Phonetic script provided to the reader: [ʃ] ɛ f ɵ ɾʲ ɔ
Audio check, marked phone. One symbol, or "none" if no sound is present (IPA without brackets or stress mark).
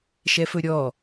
ʃ